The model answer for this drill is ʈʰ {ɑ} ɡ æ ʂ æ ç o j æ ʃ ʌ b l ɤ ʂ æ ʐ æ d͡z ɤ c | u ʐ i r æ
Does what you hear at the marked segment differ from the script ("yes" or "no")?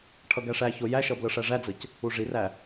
yes